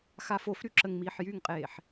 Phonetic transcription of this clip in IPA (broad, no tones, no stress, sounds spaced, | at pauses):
x a f o f ɾ y ǁ ə ŋ m iː ħ j y ŋ qʼ eː ħ